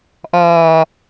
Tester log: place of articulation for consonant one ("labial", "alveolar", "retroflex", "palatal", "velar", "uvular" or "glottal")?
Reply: glottal